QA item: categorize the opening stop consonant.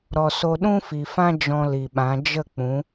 implosive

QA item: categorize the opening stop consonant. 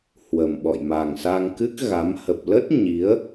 implosive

